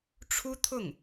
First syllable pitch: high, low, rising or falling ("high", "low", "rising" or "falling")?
high